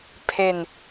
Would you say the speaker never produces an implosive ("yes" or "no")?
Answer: yes